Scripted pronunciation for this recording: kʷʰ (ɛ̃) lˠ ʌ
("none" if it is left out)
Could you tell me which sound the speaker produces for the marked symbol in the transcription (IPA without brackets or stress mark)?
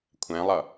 ɛ̃